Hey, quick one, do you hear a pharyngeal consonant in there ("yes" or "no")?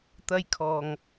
no